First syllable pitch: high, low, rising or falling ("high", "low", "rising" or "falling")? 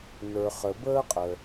low